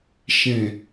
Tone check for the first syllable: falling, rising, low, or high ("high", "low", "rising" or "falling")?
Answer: low